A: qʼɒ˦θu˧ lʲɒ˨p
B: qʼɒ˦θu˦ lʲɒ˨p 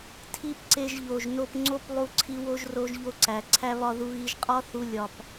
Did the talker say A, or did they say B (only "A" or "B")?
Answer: A